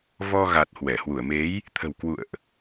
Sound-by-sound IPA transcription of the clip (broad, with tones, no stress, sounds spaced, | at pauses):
v ɔ˧ ɣ a˨˩ t̚ h w ɛ˧˩ h w u˧˩ ə̯ m e˨˦ j | t̪ʰ ə̤˨˩ w k w ṵ˧˨ ə̯ ʔ